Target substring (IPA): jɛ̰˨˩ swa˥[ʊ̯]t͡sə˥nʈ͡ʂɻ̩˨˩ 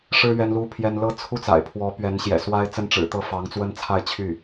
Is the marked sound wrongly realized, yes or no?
yes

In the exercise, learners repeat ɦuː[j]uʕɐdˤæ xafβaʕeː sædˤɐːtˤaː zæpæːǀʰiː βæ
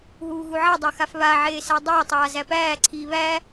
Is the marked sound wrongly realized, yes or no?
yes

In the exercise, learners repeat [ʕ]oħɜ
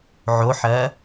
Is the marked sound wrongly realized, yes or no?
no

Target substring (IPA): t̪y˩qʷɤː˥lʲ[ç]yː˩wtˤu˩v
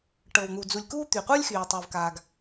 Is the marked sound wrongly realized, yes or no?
yes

